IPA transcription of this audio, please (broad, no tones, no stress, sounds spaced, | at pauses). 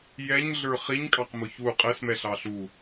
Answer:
j ɛ ɲ ɮ ə˞ χ i ɲ kʼ ɑ q m ʊ ç u qʼ ɛ s m ɛ ɬ ɑ ɬ u